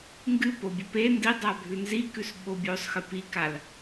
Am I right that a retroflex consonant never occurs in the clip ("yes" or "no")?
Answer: yes